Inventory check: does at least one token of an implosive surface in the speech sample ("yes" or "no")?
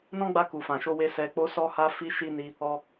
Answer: no